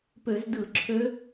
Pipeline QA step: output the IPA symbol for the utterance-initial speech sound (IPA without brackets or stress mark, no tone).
p